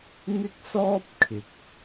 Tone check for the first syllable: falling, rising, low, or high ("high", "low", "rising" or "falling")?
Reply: high